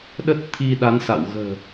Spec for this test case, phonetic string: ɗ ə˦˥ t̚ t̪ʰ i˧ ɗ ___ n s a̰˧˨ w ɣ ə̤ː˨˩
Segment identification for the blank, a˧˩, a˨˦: a˨˦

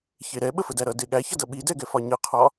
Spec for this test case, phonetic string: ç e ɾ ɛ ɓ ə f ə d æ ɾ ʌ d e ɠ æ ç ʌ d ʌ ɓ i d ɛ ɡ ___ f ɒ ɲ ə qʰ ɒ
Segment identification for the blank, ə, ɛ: ɛ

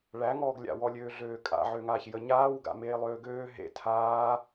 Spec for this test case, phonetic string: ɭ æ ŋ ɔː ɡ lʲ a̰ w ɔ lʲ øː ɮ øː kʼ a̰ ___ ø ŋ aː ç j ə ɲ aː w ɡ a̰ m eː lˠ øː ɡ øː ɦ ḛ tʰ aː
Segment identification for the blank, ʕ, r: ʕ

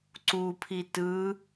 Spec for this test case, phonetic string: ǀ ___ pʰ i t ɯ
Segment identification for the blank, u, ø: u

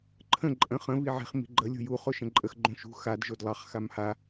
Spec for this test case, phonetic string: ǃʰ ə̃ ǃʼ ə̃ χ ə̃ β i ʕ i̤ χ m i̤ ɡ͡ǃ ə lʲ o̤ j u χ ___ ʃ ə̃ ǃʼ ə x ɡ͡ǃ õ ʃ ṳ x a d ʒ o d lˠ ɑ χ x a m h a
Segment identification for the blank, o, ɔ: o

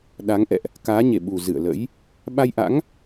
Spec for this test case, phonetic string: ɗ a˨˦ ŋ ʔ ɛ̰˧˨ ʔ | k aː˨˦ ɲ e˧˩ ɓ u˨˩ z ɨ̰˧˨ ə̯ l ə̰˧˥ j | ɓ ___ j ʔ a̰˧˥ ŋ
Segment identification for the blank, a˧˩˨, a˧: a˧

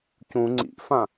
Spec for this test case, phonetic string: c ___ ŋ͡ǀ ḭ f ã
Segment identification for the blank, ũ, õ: ũ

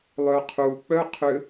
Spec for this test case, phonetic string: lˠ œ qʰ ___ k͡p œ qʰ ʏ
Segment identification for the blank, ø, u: u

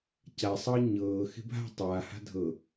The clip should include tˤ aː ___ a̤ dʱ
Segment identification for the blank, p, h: h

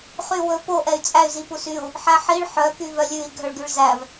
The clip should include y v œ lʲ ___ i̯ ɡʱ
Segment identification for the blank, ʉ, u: ʉ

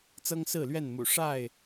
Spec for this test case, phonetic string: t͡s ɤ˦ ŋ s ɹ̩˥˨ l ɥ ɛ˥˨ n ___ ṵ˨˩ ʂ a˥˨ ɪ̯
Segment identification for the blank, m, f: m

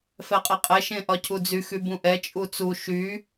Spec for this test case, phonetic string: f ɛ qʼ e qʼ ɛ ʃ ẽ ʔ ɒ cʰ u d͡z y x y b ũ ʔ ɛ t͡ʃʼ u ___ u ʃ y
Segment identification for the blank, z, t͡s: t͡s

